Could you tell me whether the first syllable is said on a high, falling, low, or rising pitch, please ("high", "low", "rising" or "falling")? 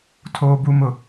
low